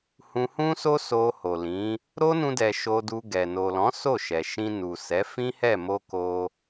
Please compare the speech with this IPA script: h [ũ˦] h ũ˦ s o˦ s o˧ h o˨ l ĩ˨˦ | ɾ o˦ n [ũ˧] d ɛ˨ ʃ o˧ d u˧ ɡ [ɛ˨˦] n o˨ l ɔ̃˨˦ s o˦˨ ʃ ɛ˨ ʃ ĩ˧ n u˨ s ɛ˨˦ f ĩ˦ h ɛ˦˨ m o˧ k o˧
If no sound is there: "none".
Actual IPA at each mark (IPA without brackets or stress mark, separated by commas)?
ũ˧, ũ˧, ɛ˨